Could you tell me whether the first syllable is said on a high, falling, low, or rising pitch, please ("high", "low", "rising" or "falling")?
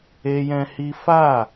high